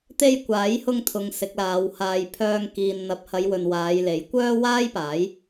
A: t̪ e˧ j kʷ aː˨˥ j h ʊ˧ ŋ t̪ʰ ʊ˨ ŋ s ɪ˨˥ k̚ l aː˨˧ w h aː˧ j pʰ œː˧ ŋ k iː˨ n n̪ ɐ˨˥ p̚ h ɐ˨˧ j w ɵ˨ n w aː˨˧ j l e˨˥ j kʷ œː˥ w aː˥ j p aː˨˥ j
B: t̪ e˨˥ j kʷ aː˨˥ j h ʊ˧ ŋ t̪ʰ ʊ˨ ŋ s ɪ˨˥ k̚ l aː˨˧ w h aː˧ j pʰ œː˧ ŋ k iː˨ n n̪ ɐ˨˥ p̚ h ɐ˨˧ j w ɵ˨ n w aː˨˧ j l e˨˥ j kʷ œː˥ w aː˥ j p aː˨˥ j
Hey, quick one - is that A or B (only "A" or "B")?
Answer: A